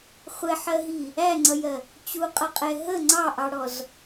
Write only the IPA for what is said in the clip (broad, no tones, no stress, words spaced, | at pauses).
χʷɛħɜɦi | æŋ͡ǀʌjɜ | t͡ɕuqʼʌqʼɛ ɦə ŋ͡ǀɑʔɑɽɔz